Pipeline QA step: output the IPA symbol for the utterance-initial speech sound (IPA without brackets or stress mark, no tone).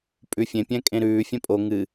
pʼ